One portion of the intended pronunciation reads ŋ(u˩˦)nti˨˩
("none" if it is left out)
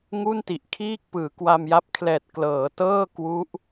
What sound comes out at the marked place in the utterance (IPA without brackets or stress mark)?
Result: u˥˩